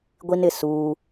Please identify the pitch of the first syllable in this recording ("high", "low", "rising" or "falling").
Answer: high